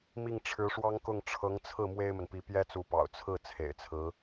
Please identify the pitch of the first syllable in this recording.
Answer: falling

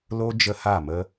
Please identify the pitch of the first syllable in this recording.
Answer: high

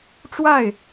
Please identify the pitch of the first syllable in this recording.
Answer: falling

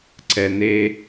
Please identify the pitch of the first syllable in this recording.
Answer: low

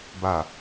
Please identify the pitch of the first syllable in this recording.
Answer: low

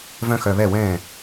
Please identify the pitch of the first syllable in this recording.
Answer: high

